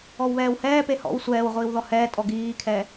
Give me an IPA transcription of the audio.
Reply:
ɔwβɛːwhɛːpe hɔ̰w sʷɛːwʁʷiːw ðɔhɛːtʼɔ ɡiːkʰɛ

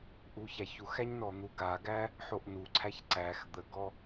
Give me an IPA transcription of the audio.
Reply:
ʔuçæçuxæɲ nɔn̪uɡaɡæ | ħoʔnuǀʰæç ǀæx d̪əɡɔ

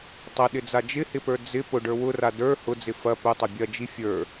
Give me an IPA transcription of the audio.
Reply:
tˤɐɗɪd͡za d͡ʒɪhɪpə˞ d͡zɪ pʊɖə˞ wʊra də˞ hʊd͡zɪ fɐ pʊtˤɐ bʲɐd͡ʒi fʲə˞

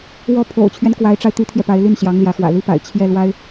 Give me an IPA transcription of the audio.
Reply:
wɔ˥˩ pʰo̰˨˩ʊ̯t͡ɕʰɥɛ˦n kwa˧˥ɪ̯ʈ͡ʂa˧ɪ̯ t̪y˥t̪ʰjɛ˨pa˧˥ɪ̯ ly˥˩nɕjɑ˧˥ŋ ljä˧˥xwä̰˨˩ li˥pa̰˨˩ɪ̯ t͡ɕʰjɛ˥˩lwa˥ɪ̯

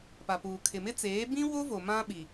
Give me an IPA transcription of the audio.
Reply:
pa˨puː˨ kʰɪ˨mɪ˦t͡seː˨˦ bĩ˦wo˦vo˨ mã˦ɓi˨

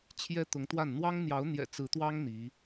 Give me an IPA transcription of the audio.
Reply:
t͡ɕʰjɛ˥t̪ʊ˧˥ŋt̪wa˥˩n n̪wɑ˥ŋn̪jɑ˧˥ʊ̯n̪jɛ̰˨˩ t͡sɹ̩˧˥t̪wɑ˥ŋ n̪i˧˥

